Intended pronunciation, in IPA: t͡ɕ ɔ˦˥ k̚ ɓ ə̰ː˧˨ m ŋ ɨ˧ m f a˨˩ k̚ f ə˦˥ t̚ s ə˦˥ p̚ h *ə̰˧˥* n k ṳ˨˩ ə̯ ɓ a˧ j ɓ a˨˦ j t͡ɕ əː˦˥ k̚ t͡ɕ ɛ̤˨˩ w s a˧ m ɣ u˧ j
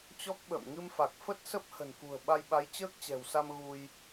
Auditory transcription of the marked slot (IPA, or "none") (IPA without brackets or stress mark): ə̤˨˩